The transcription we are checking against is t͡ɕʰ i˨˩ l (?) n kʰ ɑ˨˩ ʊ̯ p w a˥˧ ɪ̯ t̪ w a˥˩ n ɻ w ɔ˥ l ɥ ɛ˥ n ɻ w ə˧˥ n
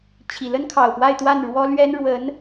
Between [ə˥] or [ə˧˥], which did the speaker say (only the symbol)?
ə˥